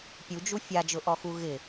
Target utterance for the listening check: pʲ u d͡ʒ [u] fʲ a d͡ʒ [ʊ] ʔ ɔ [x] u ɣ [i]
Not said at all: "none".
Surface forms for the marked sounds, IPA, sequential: u, ʊ, x, ɪ

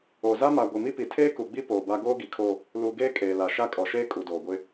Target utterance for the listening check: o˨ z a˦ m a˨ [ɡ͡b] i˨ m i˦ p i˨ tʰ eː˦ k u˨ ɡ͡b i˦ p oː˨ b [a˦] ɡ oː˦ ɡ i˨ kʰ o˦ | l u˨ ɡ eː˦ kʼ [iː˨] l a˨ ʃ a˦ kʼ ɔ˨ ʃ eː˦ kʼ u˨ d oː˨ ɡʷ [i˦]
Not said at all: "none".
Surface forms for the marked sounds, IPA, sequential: ɡʷ, a˦, eː˨, ɪ˦

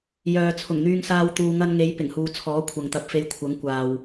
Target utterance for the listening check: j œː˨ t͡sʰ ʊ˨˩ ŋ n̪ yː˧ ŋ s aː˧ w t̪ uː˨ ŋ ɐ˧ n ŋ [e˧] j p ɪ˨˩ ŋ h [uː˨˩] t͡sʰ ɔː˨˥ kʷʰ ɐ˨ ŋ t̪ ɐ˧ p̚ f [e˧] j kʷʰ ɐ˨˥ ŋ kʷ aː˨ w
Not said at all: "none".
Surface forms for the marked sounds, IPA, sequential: e˨˧, uː˨, e˧

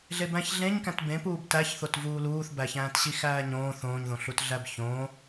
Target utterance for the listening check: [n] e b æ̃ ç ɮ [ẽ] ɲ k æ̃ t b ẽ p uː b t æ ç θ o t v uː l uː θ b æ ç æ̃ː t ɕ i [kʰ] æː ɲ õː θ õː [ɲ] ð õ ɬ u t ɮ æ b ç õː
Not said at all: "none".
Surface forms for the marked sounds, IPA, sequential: ɮ, ẽ, x, ɲ

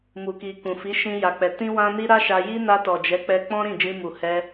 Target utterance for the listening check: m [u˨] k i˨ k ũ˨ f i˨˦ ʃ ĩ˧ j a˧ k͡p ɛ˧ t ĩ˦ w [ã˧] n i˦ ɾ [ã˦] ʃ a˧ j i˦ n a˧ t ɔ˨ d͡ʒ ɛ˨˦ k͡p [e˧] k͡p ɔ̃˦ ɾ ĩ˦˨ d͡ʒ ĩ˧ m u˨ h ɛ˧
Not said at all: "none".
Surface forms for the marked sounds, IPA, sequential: u˨, ã˦, a˦, ɛ˧

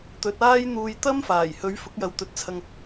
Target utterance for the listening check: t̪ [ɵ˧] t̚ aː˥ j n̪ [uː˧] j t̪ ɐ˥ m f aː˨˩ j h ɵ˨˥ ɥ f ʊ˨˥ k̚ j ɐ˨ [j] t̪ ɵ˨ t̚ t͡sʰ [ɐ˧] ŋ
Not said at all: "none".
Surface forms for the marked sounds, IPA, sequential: ɵ˨˥, uː˧, w, ɐ˧

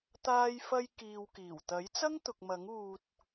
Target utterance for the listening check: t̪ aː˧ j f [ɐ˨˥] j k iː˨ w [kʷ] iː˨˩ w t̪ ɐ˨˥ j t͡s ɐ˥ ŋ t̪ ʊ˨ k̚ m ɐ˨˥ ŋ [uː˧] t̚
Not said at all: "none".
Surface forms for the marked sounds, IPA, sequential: ɐ˧, k, uː˧

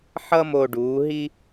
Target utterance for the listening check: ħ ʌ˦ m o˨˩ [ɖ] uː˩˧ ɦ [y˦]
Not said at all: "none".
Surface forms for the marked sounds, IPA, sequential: ɖ, i˦

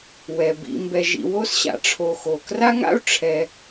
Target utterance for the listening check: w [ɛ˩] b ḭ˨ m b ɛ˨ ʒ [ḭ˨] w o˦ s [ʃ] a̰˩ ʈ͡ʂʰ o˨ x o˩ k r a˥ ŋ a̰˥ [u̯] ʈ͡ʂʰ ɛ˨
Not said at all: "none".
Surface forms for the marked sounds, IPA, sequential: ɛ˩, ḭ˨, ɕ, u̯

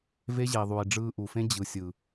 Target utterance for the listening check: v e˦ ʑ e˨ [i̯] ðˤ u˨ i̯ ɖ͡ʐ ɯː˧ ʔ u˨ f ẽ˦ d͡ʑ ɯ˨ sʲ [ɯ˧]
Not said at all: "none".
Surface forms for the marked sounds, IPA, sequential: i̯, ɯ˨

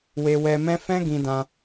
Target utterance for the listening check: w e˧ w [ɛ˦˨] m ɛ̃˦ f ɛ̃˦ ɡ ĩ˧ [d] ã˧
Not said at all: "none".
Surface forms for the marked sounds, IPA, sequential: ɛ˧, d

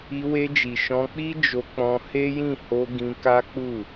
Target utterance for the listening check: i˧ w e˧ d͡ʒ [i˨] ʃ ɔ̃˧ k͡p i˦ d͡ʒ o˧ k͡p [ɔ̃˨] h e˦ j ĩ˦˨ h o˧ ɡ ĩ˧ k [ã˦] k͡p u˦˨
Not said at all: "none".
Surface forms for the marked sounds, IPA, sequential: i˨, ɔ̃˧, a˦

